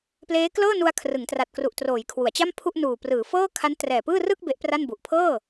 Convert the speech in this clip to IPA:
p l eː˦˥ k l ɤː˥˩ n u˧ a̯ kʰ r ɯ˩˦ ŋ t r a˨˩ t̚ k r u˨˩ ʔ t r oː˩˦ j kʰ w u˩˦ a̯ t͡ɕ a˥˩ m pʰ u˥˩ ʔ n uː˨˩ p r ɯː˩˦ f ɤː˥˩ kʰ a˦˥ n t r ɛː˨˩ p ɯː˥˩ r ɯ˥˩ k̚ b e˦˥ ʔ p r a˥˩ n b u˨˩ ʔ pʰ ɤː˥˩

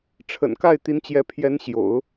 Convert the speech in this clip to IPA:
ʈ͡ʂʰ ə̰˨˩ n k a˥˩ ɪ̯ t̪ i˧˥ n t͡ɕ j ɛ˧˥ pʰ j ɛ˧˥ n ɕ j o̰˨˩˦ ʊ̯

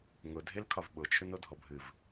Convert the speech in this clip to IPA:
ŋ ʊ dʱ e l kʰ ɒ v ɓ ʊ t͡ʃʰ ʏ n o dʱ ɔ bʱ ɨ v

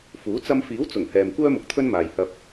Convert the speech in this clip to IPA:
f uː˨˥ t͡s ɐ˧ m f iː˨˥ w t͡s ʊ˨˩ ŋ h ɛː˨ m kʷ œː˥ m ʊ˨ k̚ t̪ʰ ɵ˥ n m aː˨ j h ɐ˧ p̚

